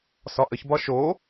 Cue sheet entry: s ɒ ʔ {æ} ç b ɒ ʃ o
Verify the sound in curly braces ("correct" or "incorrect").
incorrect